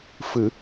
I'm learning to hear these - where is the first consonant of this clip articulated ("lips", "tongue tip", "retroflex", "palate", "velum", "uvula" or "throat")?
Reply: lips